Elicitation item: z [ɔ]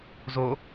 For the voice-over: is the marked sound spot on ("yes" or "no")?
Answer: no